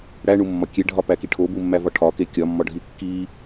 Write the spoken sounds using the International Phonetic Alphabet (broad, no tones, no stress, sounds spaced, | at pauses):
ɽ æ ɳ u mː ɒ kʲ e ɖʱ ɒ p æ k i ʈʰ o b u mː æ v ɒ ʈʰ ɒ k e kʲ ɒ mː ɒ ɖʱ i kː i